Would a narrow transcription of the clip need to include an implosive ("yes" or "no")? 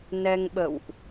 yes